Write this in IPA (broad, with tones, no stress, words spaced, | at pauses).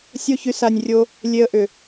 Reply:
sʲo˦çy˧sa˧nʲrʲo˦ | lʲe˧ə̯ʔʏ˨